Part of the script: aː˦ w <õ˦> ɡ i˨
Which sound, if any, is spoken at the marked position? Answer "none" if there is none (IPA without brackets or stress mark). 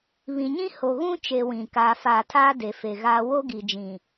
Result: o˦